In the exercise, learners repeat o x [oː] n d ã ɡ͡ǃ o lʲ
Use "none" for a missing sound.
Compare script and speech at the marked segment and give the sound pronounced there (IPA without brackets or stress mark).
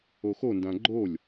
o